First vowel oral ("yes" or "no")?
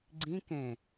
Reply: no